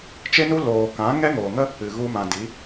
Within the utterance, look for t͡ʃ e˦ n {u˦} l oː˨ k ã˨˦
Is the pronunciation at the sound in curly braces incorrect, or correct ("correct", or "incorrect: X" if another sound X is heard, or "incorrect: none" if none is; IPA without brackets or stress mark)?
correct